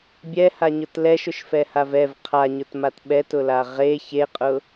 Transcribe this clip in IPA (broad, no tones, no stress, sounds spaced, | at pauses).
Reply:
bʲ ɛ h a ɲ ʊ t l ɛ ʃ ʊ ʃ f ɛ h a v ɛ v qʰ a ɲ ʊ t m a t ɓ ɛ t ʊ l a ʁ e ç e qʼ ʊ